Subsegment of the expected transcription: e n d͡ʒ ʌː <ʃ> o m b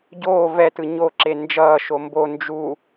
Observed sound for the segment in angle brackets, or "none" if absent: ʃ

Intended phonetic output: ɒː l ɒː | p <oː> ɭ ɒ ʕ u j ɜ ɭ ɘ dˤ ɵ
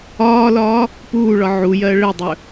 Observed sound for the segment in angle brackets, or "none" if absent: uː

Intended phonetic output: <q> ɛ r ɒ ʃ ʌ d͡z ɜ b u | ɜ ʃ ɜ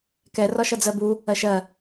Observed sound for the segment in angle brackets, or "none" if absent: k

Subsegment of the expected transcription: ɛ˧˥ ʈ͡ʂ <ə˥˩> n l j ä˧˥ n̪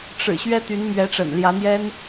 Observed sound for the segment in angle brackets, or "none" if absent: ə̰˨˩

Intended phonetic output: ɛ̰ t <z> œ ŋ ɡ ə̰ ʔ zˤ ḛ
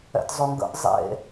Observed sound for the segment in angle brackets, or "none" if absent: zˤ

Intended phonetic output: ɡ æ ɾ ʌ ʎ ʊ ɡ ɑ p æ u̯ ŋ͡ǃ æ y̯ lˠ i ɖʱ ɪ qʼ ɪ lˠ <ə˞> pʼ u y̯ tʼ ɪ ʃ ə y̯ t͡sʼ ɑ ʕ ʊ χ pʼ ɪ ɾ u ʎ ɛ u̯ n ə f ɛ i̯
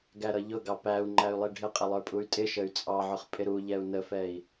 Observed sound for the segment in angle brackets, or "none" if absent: ə˞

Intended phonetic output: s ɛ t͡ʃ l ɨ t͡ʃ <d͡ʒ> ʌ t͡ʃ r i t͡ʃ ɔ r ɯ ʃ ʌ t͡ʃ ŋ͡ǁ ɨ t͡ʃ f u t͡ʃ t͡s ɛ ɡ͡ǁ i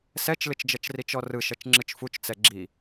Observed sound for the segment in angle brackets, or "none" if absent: d͡ʒ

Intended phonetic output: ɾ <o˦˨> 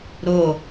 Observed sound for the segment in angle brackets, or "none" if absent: o˦˨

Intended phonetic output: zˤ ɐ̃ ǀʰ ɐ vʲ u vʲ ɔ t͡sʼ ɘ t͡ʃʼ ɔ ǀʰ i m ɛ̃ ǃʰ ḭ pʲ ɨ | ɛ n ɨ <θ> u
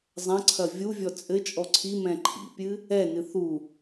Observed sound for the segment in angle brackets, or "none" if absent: θ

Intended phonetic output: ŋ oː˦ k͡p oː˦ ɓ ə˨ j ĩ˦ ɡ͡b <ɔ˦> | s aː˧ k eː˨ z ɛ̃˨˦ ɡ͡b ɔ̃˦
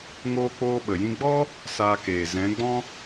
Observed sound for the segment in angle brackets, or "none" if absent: ɔ˦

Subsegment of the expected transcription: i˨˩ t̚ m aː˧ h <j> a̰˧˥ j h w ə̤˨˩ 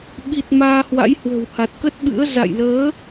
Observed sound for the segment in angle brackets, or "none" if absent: w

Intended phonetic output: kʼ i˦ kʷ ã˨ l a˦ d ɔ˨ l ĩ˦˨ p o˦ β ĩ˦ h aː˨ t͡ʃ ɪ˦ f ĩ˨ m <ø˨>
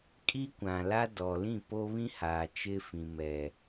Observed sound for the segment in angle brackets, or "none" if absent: ɛ˨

